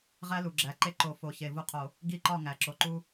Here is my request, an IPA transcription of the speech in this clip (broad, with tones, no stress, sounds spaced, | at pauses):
ʁ æ˦ l u˨ ɡ͡ǁ æ˨˦ ǃ e˦ ǃ o˨ f o˨˦ ç e˨ v u˦ qʰ o˨ | ɡ i˦ ǃ ɒ˦˨ ŋ æ˨ ǁ o˨ ǃ u˦